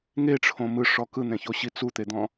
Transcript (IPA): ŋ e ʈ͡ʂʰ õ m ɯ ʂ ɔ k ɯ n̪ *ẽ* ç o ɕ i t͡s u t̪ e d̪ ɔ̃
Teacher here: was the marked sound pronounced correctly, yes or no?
yes